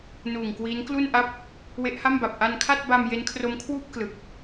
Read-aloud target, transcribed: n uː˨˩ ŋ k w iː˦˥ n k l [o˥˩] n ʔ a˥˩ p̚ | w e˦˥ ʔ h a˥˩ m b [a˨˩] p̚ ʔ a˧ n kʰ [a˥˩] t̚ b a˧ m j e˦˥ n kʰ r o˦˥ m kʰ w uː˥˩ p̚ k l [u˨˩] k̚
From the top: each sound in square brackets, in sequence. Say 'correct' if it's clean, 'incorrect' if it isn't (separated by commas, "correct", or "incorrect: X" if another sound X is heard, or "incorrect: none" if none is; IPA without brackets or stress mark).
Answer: incorrect: u˥˩, correct, correct, incorrect: ɯ˨˩